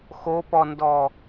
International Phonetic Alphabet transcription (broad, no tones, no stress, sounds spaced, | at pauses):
x o p ɔ n d ɔ